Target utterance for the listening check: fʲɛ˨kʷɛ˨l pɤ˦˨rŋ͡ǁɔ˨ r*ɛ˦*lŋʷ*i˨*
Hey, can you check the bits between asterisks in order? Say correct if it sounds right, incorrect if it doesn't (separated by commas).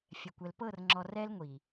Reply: correct, correct